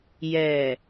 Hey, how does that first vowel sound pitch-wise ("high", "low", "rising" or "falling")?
low